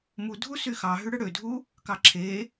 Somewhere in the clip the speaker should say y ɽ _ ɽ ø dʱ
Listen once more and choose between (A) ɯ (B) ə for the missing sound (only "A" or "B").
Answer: A